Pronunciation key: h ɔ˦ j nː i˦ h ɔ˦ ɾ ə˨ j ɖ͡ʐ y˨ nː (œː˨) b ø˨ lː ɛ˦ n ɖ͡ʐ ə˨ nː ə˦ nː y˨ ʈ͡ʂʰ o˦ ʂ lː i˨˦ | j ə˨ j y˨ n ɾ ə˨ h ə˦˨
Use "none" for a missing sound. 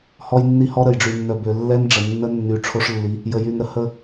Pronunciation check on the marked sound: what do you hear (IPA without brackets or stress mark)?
œ˨